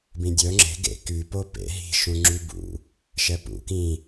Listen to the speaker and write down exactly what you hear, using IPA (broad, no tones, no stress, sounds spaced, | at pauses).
b ĩ dʲ œ ŋ͡ǁ e̤ ɡ ḛ k y p o p ḛ ɦ i̤ ʃ ũ ŋ͡ǁ y b ṵ | ʃ ɛ p ṵ k ĩ